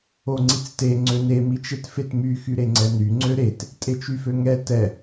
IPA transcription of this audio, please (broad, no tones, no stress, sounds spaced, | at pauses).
o ŋ͡ǀ i t͡s t e ŋ͡ǀ ø n e m i t͡ʃ e t f e t m y x y ɾ e ŋ͡ǀ ɛ n y ŋ͡ǀ ø ɾ e t | tʼ e t͡ʃ y f ø ŋ ɛ t ɛ